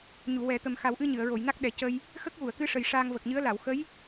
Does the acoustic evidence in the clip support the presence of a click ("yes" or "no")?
no